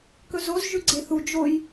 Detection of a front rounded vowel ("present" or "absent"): absent